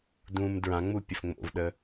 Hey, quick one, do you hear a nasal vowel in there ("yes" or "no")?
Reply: yes